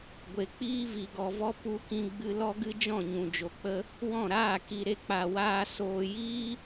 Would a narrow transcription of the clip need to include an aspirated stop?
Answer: no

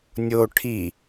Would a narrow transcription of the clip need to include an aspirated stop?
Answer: yes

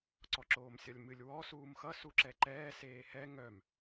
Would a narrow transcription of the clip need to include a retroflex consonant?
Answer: no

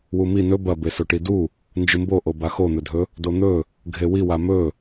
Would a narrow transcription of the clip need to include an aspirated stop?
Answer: no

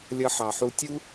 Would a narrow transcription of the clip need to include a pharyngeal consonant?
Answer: yes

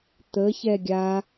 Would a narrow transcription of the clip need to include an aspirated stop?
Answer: no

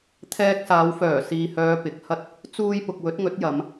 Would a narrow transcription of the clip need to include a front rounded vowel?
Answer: yes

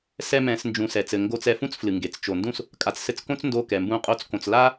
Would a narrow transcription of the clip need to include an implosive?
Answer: no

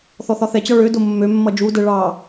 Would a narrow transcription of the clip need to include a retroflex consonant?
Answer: yes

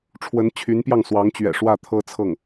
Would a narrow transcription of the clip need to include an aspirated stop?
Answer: yes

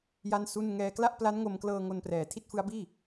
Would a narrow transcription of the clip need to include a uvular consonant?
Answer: no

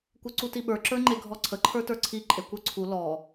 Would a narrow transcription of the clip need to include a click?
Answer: yes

